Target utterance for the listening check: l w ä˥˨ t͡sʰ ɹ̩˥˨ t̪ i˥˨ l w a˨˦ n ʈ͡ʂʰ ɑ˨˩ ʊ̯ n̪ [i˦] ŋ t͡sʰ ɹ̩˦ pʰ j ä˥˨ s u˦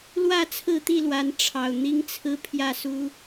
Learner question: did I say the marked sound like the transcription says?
yes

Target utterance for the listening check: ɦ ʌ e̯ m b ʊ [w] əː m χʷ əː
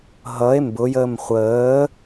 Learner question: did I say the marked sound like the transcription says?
no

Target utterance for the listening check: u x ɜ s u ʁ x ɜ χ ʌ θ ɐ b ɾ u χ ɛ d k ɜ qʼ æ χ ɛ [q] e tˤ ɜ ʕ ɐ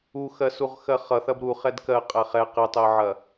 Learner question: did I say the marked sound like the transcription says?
yes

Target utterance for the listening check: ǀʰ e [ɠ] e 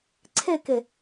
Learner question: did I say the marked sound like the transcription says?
no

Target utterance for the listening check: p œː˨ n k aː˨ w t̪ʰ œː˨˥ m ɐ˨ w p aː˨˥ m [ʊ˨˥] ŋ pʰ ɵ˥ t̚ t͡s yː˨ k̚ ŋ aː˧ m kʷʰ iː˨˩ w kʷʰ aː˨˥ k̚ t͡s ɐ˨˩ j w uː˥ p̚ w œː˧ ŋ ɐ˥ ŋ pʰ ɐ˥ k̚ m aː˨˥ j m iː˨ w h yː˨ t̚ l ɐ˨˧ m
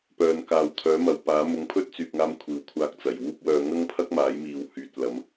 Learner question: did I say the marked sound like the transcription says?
yes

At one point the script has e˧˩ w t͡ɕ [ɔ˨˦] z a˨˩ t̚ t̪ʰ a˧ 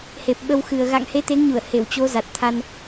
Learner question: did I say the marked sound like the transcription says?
no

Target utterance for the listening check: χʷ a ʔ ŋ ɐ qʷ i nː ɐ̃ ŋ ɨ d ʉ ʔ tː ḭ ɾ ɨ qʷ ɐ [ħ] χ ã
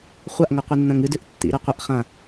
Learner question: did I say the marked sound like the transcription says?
no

